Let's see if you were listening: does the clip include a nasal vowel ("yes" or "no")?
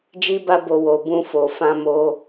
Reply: yes